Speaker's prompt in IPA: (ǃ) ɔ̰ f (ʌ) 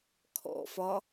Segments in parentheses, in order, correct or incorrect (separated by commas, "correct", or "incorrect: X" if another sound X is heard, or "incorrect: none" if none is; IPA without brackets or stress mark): incorrect: kʰ, incorrect: ɒ